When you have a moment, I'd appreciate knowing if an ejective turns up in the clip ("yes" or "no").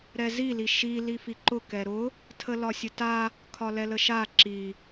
no